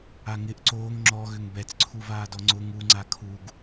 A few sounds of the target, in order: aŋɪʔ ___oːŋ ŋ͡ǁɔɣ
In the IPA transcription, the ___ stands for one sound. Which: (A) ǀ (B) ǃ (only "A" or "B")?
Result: A